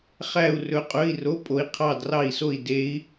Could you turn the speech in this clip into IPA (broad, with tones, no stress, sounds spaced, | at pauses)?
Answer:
χ æ˥˧ u̯ r ɵ˧˥ qʼ ɵ˧˥˧ i̯ r o˧˥˧ pʼ o˧˥ i̯ qʰ ɑ˥˧ d r ɑ˥˧ i̯ s o˥˧ i̯ d e˧˥ i̯